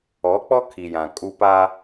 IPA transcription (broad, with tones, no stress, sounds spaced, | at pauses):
ɔ˨˦ k͡p ɔ˦ kʰ i˨ j ã˨ kʼ u˦ p a˦